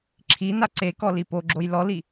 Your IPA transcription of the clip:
ǁʰi naǀekɔ lipoɡ͡ǁoj lɔli

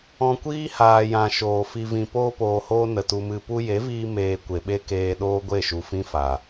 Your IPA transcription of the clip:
ɔ̃˧kʷiː˦haː˨jã˨ ʃoː˨fi˧vĩ˧ poː˧poː˨hoː˧ nə˨tu˧mɨ˧ pu˧je˨˦viː˧ meː˧ kʷe˨ɓe˦ keː˧ ɗoː˦ɡʷe˦˨ʃu˨fĩ˦ fa˨

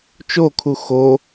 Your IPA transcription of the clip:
t͡ʃokʰu xo

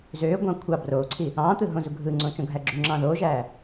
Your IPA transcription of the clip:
zøːɡʷɑ̃ː kʷʰɑ broːǀʰi | ɑ̃ː t̪ɯɦõzu ɡʱɯŋ͡ǀõ t͡ʃõɡʱæɡ͡ǁuŋ͡ǁɑ̃ː ðoːʒæː

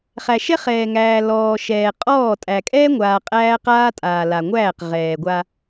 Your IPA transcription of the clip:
χæ˨ʃɛ˦ χɛː˨ŋæː˨ lɔː˨ʃɛː˨ qʼɔː˦˨tʼæ˨ kʼɛː˦ŋʷaː˨ qʼæː˦qaː˦ tʼaː˨ la˨ŋʷæː˦˨qʁɛː˨ ɡʷa˦

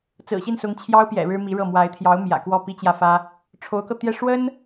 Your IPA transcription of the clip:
t͡sɹ̩˨˩ɕi˥˩nsʊ˧˥ŋ t͡ɕʰjɑ˥ʊ̯pjɛ̰˨˩ ɻɻ̩˥mi˧˥ɻɤ˥˩ mwa˧˥ɪ̯t̪ʰjɑ˧˥ʊ̯ mjä̰˨˩ kwɔ˥˩pi˥t͡ɕjä˥˩fä˥ | ʈ͡ʂʰo˧˥ʊ̯kɤ˧t̪jɛ˥˩ ʂwə˥n

